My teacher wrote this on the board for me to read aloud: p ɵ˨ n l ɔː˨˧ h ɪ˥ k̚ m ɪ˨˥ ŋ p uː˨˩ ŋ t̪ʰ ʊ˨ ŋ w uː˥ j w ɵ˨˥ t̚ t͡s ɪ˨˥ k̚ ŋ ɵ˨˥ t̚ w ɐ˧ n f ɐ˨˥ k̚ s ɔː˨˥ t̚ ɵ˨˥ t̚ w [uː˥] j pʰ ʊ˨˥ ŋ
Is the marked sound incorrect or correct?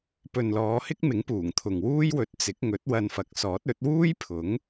correct